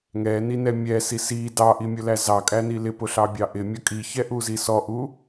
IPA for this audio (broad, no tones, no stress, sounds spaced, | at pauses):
ŋ ɛ n i n ɛ mʲ ɛ s i s i d ɑ ʔ i mʲ ʊ l æ z ɑ kʼ æ n i l ɪ p ʊ ɬ ɑ bʲ ɑ ʔ ɪ mʲ ʌ kʼ i ç ɛ ʔ u z i s ɔ ʔ u